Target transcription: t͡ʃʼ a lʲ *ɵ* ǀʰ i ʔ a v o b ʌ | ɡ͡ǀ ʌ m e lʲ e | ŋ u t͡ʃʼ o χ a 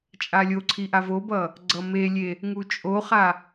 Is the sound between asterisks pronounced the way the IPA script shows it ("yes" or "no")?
no